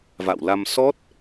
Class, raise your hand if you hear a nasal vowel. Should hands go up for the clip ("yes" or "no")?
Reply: no